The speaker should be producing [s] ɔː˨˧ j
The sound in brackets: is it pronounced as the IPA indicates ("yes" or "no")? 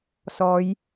yes